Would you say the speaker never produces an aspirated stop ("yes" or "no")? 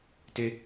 yes